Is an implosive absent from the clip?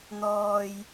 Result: yes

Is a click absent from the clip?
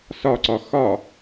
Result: no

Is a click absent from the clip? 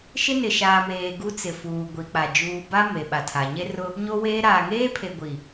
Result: yes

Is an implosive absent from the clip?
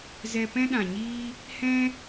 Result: no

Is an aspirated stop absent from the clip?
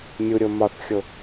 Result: yes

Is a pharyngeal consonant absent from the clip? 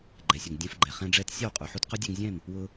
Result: no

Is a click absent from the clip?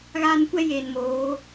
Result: yes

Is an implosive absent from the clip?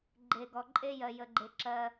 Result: yes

